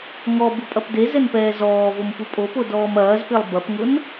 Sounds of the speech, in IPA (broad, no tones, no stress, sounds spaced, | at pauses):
ŋ ɔ b u pʼ ɐ p d e z ɛ n p ɛː z ɔː v o m p u pʼ o p o d ɔː m ɐː z p e lˠ b ɐ p ŋ ʊ n